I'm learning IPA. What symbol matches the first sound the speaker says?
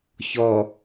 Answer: ç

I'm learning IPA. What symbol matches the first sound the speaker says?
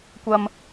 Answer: kʷ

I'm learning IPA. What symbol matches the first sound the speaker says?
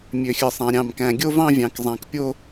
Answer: mʲ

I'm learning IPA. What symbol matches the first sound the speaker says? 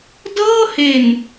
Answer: d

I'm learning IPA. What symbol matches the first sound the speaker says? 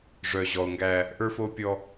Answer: ʐ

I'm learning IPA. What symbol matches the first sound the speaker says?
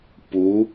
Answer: p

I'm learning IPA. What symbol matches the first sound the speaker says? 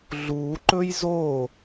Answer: ɮ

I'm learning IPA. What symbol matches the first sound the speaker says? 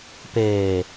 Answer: p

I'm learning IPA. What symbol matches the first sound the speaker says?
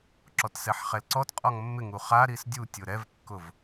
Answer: ǁ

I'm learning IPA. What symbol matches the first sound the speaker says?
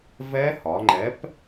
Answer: v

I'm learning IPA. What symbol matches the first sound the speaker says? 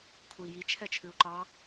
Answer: kʰ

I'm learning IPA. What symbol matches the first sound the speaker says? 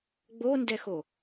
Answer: ɡ͡b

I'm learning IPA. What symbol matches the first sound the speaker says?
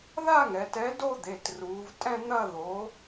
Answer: ð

